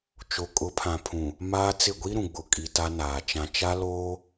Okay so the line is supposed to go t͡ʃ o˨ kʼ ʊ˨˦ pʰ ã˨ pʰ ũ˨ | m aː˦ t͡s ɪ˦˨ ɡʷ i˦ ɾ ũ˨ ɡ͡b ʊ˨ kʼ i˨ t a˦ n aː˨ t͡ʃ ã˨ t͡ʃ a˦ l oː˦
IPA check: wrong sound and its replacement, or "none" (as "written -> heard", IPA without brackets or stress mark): none